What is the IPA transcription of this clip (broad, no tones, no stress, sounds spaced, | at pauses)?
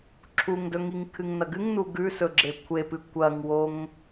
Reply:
ǁʰ u ŋ d ɵ ŋ i ŋ kʰ ɨ ŋ n ɐ ɡ ɨ ŋ n u ɡ ʉ s ɵ ɡ͡ǁ e kʷʰ e p ɨ kʷ ɐ ŋ w o ŋ